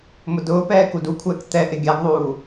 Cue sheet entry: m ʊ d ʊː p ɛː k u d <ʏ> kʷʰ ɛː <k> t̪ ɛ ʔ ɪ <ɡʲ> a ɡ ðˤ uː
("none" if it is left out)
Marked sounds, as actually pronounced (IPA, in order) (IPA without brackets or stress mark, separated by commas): u, k, ɡʲ